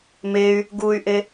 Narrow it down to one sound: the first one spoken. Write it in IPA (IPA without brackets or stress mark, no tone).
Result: m